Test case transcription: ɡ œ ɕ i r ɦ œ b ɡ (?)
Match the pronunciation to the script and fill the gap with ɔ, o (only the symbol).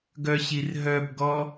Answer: ɔ